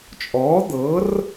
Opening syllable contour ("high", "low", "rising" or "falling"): rising